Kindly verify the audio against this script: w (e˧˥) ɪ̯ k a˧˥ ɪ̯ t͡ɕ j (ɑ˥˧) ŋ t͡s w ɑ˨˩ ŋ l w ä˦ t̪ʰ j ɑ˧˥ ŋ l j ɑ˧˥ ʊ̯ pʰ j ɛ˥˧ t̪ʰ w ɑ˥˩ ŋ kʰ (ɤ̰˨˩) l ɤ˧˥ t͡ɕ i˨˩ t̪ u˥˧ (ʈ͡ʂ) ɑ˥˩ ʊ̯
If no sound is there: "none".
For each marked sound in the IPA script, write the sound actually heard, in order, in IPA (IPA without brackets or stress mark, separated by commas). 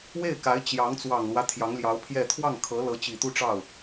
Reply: e˥˩, ɑ˧˥, ɤ˧˥, ʈ͡ʂ